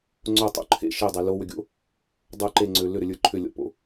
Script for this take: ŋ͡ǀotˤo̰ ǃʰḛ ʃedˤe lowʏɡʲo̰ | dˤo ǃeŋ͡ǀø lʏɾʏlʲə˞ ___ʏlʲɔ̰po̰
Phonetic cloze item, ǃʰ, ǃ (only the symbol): ǃʰ